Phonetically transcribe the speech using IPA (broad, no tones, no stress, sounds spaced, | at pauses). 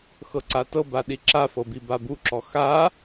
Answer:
x ɤ ǀ a t ɤ b a ɗ i ǁ a f ɤ b i b a b u ǁ ɔ x a